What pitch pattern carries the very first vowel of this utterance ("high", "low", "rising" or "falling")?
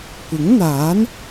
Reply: rising